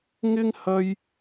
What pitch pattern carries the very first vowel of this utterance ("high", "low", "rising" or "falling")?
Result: high